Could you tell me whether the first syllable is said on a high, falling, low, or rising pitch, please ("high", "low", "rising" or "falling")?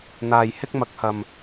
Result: low